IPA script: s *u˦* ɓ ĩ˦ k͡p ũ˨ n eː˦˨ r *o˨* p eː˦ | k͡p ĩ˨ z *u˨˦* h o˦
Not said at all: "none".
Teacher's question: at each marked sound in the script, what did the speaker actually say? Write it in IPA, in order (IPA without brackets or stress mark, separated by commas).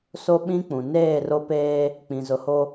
o˦, o˦, ʊ˨˦